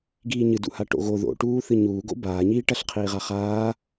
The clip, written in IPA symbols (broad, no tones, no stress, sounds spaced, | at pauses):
ɡ iː ɲ ɨ d ṵ h a ʈ o̰ ɣ o ð o̰ ʈ uː θ ɨ ɲ uː ɡ o̰ b aː ɲ iː ʈ ɐ ɬ qʰ iː ʁ a χ aː